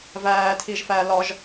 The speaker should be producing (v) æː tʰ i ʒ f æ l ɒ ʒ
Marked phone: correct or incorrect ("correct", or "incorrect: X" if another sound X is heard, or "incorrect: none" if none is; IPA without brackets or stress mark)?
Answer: correct